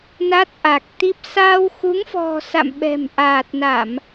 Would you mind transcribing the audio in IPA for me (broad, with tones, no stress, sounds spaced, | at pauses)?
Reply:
n a˦˥ t̚ ʔ a˨˩ k̚ t̪ i˦˥ p̚ s aː˧ w x u˨˦ ŋ f ɔ̤˨˩ s a̰˧˨ m ɓ ɛ̤˨˩ m ʔ aː˨˩ t̚ n a˧˩˨ m